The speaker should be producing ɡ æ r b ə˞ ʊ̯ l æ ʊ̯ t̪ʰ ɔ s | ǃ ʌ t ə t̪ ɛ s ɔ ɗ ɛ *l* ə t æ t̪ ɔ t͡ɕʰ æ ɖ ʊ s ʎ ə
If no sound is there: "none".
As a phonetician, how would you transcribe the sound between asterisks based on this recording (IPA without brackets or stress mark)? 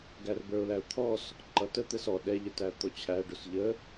ʎ